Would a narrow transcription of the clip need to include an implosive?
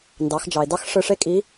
no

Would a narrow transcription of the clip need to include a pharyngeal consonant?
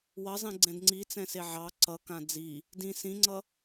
yes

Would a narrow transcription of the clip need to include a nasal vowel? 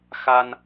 no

